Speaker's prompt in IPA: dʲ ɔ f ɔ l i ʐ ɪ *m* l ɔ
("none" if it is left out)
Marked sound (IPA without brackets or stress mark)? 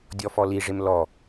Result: m